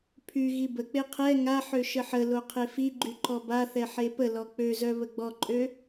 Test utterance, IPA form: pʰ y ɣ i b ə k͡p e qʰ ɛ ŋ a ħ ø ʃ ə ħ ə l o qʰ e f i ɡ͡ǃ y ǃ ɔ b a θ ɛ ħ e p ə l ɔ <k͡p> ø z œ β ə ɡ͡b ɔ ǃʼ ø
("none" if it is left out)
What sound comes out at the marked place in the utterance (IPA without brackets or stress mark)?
k͡p